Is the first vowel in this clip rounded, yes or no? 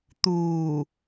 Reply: yes